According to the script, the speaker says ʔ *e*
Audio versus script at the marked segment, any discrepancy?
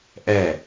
yes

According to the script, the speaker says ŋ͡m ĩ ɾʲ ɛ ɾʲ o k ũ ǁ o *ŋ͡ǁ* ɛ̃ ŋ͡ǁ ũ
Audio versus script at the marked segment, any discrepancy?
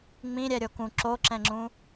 yes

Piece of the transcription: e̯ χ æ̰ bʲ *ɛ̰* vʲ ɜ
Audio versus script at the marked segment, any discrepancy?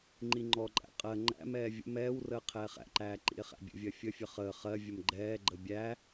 yes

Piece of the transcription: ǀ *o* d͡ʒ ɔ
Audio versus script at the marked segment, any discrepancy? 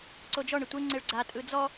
no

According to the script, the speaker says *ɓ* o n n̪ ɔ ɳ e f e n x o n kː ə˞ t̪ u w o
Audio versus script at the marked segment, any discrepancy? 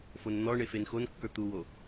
yes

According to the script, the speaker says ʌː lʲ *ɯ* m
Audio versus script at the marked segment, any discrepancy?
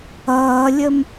yes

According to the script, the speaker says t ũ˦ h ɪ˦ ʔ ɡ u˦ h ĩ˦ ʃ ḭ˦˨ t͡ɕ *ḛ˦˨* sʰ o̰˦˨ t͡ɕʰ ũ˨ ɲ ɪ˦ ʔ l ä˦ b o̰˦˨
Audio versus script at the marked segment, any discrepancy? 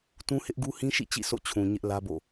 yes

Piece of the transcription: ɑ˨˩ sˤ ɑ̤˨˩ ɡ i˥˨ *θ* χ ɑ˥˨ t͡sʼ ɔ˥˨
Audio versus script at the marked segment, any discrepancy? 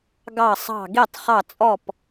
yes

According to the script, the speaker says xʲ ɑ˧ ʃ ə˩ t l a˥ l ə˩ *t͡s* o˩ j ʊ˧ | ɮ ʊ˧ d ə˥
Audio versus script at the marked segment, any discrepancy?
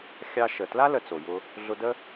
no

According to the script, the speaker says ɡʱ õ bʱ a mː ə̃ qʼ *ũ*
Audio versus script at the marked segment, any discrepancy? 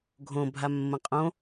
yes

